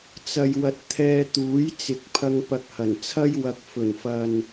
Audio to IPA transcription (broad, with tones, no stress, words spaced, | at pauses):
t͡sɐ˨jwɐ˨t̚ t̪ʰɛː˧t̪uː˨˥jt͡sɪ˨˥k̚pʰɐ˧ŋ pɐ˧k̚hɐ˨˩nt͡sʰɐ˥j wɐ˨k̚fɵ˨˩nfɐ˨n